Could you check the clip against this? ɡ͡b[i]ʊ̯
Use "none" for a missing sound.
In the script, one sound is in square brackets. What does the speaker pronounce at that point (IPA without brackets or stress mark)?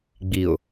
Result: i